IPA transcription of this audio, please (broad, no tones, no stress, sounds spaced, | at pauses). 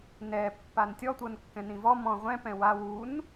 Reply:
n ɛ pː a n tʲ ɔ tʷ ɤ n kː ɛ̃ n ĩ v ɔ m ɔ̃ ʁʷ ɛ̃ p ɛ̃ w a w u n